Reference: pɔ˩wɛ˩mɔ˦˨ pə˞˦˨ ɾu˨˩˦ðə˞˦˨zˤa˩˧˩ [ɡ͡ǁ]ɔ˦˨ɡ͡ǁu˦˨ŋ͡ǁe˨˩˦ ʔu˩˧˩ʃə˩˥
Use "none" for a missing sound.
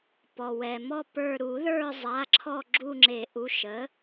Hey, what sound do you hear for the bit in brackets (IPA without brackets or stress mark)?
ǁʰ